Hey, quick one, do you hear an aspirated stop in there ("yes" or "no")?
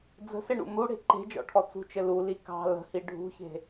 yes